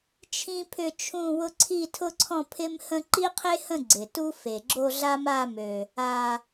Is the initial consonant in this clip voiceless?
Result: yes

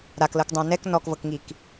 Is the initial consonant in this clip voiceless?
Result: no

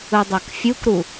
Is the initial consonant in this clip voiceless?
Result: no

